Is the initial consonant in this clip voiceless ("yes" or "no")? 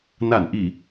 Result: no